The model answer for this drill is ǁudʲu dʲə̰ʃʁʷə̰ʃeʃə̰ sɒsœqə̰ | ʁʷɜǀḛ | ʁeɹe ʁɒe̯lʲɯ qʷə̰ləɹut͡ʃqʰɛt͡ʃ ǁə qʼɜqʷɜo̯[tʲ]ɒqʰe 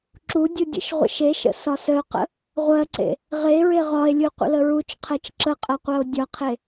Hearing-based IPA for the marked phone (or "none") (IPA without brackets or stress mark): dʲ